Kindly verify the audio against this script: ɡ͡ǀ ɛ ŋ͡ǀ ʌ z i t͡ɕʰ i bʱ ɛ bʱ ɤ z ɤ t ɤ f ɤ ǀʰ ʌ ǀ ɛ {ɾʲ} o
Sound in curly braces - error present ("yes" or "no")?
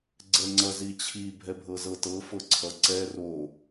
yes